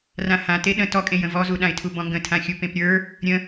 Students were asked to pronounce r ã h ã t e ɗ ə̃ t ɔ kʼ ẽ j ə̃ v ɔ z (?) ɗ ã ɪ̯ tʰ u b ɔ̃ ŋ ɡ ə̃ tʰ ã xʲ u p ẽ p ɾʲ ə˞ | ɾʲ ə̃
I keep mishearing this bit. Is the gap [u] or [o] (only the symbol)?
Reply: u